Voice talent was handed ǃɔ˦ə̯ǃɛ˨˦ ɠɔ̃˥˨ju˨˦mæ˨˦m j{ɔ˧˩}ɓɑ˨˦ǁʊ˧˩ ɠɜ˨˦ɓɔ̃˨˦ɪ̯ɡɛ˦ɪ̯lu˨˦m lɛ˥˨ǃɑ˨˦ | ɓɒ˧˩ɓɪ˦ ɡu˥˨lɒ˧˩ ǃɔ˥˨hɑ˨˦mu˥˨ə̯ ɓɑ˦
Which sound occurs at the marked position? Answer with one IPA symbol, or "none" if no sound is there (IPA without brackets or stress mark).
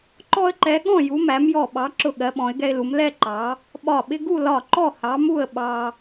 ɔ˧˩